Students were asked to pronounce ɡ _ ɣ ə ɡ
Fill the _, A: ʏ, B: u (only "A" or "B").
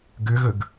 A